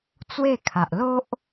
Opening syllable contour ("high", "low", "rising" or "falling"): falling